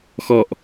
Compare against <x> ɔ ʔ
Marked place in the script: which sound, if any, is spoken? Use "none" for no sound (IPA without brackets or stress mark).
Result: x